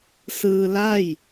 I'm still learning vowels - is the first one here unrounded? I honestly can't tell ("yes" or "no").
yes